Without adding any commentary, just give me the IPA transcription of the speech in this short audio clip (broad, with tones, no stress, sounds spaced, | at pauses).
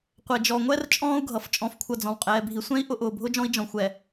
qʷ ɛ˨ d͡ʒ ɔ˨ ŋʷ ɛ˦ r t͡ʃʼ ɔ̃ː˦ u̯ ɡʱ ʌ˨ f t͡ʃʼ ɔ̃˨ f kʷʰ ʌ˨ d͡z ɔ̃˨ w qʼ ɛː˨ bʱ i˨ sʷ ɛ̃˦ i̯ ʔ ʊ˦ ʔ ʊː˨ bʱ ʊ˦ d͡ʒ ɔ̃˦ i̯ d͡ʒ ɔ̃˨ xʷ ɛ˨